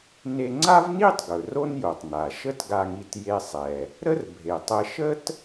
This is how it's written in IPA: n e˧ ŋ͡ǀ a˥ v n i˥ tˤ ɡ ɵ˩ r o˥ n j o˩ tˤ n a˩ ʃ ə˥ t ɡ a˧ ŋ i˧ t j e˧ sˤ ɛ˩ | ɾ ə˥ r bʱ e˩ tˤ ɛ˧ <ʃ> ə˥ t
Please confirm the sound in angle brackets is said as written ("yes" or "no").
yes